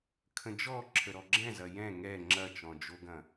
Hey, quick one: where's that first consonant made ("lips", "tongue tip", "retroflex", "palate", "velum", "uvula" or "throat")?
velum